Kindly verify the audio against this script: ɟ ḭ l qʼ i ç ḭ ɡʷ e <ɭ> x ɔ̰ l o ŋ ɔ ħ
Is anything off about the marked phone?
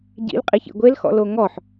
yes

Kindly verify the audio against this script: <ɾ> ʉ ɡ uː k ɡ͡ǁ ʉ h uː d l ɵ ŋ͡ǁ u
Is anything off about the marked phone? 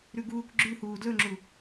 no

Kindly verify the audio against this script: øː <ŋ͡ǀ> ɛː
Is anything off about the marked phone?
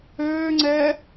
no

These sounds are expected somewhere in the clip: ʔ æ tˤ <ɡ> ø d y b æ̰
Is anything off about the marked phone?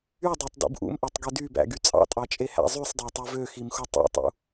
no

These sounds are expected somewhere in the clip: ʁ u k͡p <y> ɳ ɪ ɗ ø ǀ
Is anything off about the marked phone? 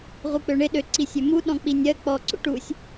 yes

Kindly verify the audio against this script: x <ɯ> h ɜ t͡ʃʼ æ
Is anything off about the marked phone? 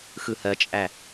no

